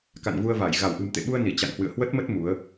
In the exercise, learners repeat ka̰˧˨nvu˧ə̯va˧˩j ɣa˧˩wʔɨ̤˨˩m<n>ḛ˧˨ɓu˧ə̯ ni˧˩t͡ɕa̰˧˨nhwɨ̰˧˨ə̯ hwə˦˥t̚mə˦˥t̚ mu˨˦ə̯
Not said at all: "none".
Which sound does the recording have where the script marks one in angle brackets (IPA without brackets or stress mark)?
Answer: t̪